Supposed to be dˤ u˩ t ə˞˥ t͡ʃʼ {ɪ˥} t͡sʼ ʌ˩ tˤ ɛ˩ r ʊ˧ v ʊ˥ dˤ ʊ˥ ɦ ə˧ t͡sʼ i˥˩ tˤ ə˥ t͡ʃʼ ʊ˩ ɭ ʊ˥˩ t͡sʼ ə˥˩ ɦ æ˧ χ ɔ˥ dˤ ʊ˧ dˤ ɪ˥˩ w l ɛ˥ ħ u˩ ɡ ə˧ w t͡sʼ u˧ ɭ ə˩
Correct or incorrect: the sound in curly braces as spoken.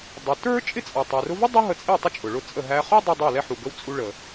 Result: correct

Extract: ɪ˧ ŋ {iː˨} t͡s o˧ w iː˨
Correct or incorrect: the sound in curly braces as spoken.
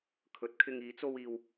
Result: incorrect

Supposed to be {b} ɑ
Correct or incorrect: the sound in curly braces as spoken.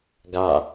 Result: incorrect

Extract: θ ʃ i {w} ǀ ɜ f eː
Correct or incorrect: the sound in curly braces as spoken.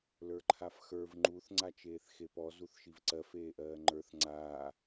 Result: incorrect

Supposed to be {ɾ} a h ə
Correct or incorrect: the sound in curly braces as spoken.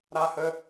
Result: correct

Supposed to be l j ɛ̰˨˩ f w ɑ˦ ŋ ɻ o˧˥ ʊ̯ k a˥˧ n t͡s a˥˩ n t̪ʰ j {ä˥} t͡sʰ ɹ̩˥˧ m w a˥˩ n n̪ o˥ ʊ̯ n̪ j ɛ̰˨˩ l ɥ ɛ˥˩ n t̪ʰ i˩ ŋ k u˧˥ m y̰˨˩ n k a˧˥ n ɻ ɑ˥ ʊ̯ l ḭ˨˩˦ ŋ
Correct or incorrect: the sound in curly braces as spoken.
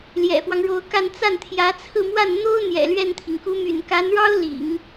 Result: incorrect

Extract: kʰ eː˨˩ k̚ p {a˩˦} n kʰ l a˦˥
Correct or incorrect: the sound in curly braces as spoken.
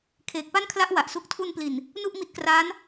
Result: incorrect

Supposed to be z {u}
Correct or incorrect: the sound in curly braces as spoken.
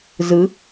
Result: incorrect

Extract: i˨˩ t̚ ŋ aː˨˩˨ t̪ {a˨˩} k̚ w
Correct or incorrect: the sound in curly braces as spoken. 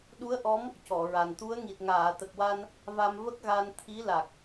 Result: incorrect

